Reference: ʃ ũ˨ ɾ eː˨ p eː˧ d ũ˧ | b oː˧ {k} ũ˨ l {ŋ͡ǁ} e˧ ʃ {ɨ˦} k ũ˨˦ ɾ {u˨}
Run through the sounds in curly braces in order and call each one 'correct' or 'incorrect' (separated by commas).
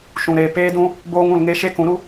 incorrect, incorrect, incorrect, incorrect